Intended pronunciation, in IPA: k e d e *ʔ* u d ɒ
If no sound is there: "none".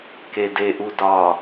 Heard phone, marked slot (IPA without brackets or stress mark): ʔ